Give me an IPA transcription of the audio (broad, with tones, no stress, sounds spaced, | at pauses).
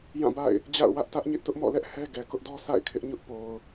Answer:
j ã˦˨ b a̰˦˨ ɪ̯ | d͡ʑ a̰˦˨ ʊ̯ w ä˦ ʔ t ä˦ ʔ ɲ ɪ˦ ʔ t ʊ˦ ʔ m ɔ̰˦˨ l ɛ˦ ʔ h ɛ˦ ɡ ɛ˨ k ʊ˦ ʔ d ɔ˦ s a̰˦˨ ɪ̯ kʰ ɪ˦ ʔ ɲ ʊ˦ ʔ p o˨ ʊ̯